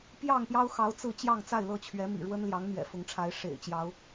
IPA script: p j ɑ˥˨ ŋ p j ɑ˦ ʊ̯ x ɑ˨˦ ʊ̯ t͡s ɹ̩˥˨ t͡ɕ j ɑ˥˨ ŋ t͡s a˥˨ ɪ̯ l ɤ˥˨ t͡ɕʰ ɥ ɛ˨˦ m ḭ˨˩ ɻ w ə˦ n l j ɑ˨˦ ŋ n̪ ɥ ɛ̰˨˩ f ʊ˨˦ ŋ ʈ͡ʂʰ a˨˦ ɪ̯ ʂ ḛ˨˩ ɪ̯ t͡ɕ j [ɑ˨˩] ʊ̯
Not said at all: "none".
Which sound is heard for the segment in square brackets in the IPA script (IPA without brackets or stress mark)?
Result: ɑ˨˦